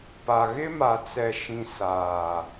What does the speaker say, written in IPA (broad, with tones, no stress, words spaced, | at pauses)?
pa˨ ɣɪ˦ma˨t͡sɛ˨ʃĩ˨ saː˨